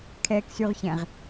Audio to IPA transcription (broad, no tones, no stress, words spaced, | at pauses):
kʰɛːksyʁçɛ̃ʁ